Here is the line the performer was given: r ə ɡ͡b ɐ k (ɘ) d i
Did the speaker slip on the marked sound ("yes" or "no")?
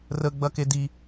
yes